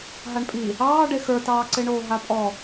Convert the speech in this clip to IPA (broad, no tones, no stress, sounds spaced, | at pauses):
ɦ a ɳ pʼ i | ɑː ɖ e x ə˞ t ɑː ǀ e ɳ oː ɦ a pʼ ɔ